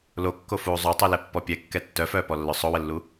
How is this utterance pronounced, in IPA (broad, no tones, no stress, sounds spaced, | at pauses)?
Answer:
l o kː o f uː zˤ o tˤ o l ɛ pː ɔ pʲ ɛ kː ɛ tː œ f œː p ɔ lː œ sˤ o w ə lː u